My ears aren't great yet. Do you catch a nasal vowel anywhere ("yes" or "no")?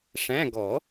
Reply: yes